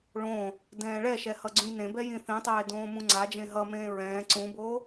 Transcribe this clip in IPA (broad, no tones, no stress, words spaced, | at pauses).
ɭõː | dɛ̃ːɭɛʃɛ hʌɡ͡ǀũjnẽbɛ jĩθĩtˤeː dõːmũŋ͡ǀad͡ʒẽ ɦʌmẽː ɹɛ̃ː ǀũboː